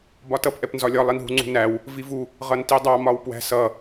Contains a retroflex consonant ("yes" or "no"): no